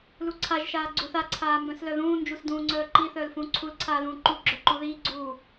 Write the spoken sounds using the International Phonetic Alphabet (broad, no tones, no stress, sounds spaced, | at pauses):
l u ǀʰ a ʒ ʃ aː ɡ͡ǀ u θ a ǀʰ aː m b œ̃ s l œ ð ũː n d͡ʒ u s d ũː ŋ͡ǀ œː ǃ i θ œː l f ũː ǀʰ u l ǀʰ aː l ũː ǃ u ɡ͡ǁ œ ǃ u ð iː ɡ͡ǀ uː